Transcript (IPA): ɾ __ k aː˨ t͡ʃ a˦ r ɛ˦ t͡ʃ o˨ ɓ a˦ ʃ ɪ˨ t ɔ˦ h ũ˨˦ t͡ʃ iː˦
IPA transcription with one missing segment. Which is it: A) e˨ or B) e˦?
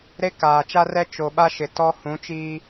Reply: B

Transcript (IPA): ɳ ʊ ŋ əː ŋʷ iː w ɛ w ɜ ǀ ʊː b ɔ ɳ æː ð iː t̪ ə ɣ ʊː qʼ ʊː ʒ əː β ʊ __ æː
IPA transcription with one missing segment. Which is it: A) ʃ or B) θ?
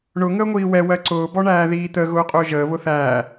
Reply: B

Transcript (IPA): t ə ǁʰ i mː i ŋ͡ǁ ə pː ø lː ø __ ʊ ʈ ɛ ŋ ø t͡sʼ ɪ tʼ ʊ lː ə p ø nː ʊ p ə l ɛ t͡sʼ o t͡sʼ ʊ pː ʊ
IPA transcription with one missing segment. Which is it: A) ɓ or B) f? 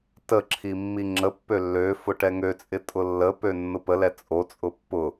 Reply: B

